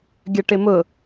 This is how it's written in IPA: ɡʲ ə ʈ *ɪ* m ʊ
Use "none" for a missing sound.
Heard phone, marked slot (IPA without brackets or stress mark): ɪ